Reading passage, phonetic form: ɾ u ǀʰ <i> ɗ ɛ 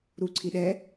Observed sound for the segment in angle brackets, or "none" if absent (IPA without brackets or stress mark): i